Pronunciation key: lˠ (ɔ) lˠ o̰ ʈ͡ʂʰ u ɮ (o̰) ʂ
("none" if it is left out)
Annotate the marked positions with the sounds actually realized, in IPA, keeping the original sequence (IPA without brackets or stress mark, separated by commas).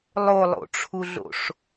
o, o̰